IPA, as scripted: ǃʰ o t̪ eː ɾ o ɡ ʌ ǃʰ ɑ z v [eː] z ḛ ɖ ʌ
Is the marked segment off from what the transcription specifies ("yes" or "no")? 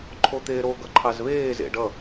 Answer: no